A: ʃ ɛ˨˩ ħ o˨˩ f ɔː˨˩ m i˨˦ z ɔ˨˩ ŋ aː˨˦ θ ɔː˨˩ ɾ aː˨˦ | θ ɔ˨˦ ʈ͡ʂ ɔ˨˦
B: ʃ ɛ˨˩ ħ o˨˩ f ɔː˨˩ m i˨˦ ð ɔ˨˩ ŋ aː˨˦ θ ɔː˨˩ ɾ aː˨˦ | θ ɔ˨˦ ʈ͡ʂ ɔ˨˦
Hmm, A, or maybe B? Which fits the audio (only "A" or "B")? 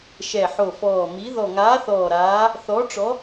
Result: B